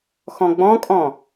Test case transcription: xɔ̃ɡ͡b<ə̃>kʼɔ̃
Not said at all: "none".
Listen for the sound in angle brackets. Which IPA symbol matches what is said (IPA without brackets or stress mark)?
ɔ̃